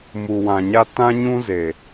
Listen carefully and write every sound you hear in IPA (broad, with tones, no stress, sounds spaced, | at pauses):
m u˨ w ã˨ ɲ a˦ t ã˦ ɲ ũ˦ z e˨